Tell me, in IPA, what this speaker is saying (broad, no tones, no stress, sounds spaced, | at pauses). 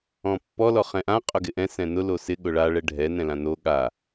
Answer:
ɔ̃ pː ɔ l ɔ χ ɛ̃ ʔ ã qʼ ʊ ɡ ɪ ʔ ɛ̃ s ɛ̃ n ʊ l o s ɪ ɠ ʊ ɭ a ɭ ɛ ɖʱ ɛ n ɛ̃ l ã n o ɠ a